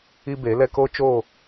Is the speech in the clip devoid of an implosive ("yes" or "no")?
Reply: yes